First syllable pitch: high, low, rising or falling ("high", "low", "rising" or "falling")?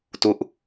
falling